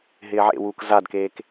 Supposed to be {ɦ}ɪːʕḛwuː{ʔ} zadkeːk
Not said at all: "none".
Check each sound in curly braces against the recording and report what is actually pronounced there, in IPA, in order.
ɦ, k

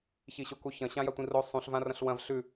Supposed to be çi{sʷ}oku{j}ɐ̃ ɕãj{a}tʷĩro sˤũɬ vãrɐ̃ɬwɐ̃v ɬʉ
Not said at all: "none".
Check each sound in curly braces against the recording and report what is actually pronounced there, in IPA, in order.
ɕ, ç, a

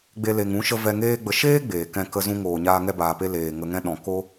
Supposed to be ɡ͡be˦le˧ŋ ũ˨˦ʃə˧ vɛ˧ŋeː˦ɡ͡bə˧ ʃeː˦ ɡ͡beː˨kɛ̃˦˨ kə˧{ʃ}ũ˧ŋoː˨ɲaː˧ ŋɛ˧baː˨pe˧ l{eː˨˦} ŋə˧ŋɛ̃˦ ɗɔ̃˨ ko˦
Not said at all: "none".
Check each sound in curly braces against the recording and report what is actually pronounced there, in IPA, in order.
z, eː˨

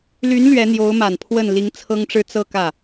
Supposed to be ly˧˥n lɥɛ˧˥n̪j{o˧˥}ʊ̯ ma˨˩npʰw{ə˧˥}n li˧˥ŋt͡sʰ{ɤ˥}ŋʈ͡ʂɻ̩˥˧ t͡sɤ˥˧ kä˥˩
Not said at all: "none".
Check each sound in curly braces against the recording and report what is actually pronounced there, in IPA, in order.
o˧˥, ə˥˩, ɤ˥

